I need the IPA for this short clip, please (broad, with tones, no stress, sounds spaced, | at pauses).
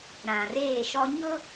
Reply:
ɾ ã˨ r eː˦˨ ʃ ɔ˦ ɲ ʊ˦